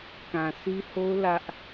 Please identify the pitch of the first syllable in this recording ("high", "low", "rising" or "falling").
low